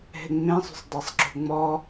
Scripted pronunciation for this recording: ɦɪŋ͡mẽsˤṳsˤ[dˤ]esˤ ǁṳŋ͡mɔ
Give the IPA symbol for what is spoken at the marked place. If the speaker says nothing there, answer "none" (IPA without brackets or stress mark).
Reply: dˤ